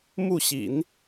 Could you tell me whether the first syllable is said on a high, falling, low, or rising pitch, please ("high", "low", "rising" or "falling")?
falling